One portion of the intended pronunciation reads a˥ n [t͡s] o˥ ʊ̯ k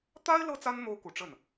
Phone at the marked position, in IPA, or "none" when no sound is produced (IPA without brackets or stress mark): n̪